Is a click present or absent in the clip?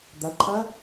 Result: present